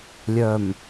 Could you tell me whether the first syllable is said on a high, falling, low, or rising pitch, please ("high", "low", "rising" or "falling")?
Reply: low